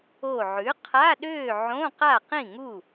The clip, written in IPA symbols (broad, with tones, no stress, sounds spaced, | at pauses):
o˧˩ ʕ ʉ˩˥ qʰ a˧˥˧ ɗ øː˥˨ ʕ õ˧˥˧ q a˥˨ q ĩ˥˨ ŋ u˥˨